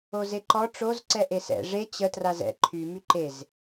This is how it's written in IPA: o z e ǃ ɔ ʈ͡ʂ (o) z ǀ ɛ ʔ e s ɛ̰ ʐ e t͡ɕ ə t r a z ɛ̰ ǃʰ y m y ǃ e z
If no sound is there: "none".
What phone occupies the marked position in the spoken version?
o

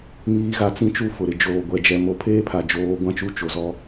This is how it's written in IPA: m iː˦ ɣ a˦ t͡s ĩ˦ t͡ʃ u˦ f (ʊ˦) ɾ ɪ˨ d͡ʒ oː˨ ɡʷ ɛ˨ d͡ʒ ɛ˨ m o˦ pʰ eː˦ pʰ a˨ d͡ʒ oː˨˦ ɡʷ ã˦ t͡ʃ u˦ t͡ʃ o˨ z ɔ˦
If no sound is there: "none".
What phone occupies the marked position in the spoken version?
ʊ˨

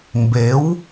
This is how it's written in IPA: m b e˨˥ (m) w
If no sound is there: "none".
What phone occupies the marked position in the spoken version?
none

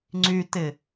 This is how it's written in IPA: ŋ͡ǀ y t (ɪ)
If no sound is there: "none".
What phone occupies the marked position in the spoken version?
ɪ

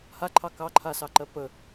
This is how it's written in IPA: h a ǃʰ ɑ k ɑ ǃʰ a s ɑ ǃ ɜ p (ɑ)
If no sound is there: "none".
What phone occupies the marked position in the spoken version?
ə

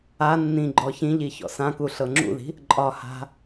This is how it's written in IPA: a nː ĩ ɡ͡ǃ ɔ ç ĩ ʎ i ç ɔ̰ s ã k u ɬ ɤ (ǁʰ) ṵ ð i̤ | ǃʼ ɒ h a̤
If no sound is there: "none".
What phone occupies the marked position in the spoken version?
ŋ͡ǁ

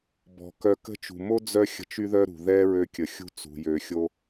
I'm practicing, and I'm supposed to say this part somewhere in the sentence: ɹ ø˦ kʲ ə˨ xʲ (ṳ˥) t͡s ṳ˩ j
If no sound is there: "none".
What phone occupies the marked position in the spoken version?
ṳ˥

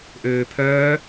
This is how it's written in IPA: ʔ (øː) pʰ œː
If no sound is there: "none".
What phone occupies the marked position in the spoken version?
øː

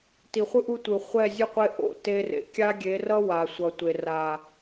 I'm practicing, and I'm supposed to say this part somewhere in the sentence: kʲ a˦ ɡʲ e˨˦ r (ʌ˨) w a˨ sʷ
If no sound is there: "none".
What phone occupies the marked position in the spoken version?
ʌ˦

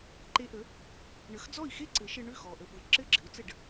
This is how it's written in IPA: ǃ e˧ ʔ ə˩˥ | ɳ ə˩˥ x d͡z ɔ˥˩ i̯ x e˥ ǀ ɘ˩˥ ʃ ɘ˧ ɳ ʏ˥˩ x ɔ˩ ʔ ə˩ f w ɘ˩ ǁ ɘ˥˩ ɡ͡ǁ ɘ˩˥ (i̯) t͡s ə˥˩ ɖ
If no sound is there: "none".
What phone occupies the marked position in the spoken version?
u̯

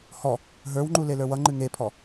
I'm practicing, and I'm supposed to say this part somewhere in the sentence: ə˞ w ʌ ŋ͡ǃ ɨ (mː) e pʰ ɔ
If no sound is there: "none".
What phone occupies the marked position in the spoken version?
ŋ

